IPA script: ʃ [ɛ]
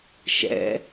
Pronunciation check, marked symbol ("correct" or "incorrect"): incorrect